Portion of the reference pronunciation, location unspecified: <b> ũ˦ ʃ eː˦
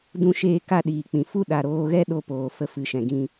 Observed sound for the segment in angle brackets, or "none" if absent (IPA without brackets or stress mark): d